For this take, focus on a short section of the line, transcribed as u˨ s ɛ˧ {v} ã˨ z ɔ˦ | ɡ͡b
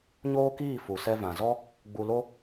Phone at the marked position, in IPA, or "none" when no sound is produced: v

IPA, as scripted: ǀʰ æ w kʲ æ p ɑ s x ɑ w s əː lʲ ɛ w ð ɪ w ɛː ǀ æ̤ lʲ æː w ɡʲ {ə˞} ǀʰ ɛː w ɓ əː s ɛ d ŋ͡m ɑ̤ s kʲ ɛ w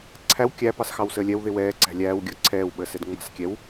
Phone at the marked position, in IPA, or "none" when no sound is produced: ə˞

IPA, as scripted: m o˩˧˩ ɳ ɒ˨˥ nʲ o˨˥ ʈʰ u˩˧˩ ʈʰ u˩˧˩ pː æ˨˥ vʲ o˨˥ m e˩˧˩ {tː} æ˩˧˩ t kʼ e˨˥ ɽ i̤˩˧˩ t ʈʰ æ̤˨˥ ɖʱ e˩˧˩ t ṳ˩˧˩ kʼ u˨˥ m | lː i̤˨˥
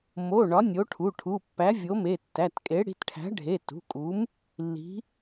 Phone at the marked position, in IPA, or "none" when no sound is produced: tː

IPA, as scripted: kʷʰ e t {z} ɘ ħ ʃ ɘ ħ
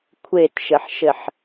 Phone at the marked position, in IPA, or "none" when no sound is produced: ʃ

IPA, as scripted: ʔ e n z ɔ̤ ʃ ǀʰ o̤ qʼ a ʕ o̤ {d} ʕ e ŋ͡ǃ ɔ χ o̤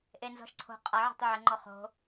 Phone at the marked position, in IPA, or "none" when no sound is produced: tˤ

